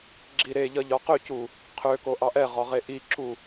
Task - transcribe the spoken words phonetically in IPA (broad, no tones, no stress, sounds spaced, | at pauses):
ɡ͡ǁ i ɾ e ʎ ʌ ʎ ɒ q ø c u | qʰ ø k o ʔ ɑ ʔ ɛ ʁ ɒ ʁ e ʔ i ǁ u